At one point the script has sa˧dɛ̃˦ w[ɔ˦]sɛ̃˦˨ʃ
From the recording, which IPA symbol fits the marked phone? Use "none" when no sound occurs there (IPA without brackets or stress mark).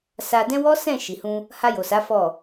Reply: ɔ˦